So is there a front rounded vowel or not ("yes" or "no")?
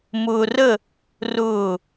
no